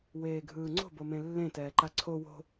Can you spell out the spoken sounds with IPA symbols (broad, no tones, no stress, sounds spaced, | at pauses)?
w eː ɡʱ ɯː ŋ͡ǀ o̤ b o m ẽ lː ẽ t ɛː ǃ a ǀʰ o w o̤